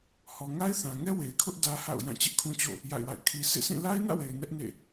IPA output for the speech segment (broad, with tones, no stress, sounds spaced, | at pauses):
h ɔ˨ ŋ a˦ ɪ̯ θ ã˨ ŋ ɛ˦ w e˨ ɪ̯ kʰ ʊ˦ ʔ d ä˦ h a̰˦˨ ʊ̯ j ã˦˨ t͡ɕ ɪ˦ ʔ kʰ ũ˦ t͡ɕ o̰˦˨ | j a̰˦˨ ɪ̯ w a̰˦˨ ɪ̯ kʰ i˦ sʰ ḛ˦˨ sʰ ĩ˦˨ l a˦ ɪ̯ n ä̰˦˨ w e˨ ɪ̯ n ɛ˦ ʔ n ḛ˦˨